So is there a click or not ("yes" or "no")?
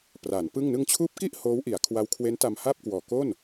no